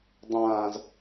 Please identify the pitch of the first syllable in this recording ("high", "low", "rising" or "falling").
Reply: low